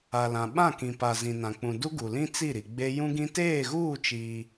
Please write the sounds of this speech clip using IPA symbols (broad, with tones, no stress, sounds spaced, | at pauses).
a˨ l ã˨ ɓ ã˦˨ k ĩ˨ p a˨ z ĩ˨ n ã˨ k͡p ũ˨ d u˦ ɡ u˨ l ĩ˦ t͡s i˦˨ ɾ i˨ ɡ͡b e˦ j ũ˦ ɡ ĩ˦ t eː˦˨ ɣ uː˦˨ t͡ʃ iː˦